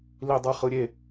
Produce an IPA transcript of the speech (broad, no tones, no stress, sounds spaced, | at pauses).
l i dˤ ɯ χ ɯ ɾʲ e